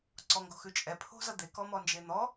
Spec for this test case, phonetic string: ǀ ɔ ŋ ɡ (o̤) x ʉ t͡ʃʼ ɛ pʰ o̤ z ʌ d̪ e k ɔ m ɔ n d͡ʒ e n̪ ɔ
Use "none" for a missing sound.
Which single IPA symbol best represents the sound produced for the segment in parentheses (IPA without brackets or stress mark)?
o̤